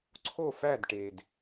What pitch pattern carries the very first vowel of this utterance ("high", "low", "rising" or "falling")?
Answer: falling